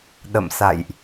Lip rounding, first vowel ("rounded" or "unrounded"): unrounded